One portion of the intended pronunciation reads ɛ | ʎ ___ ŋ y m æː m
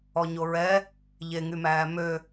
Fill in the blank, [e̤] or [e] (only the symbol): e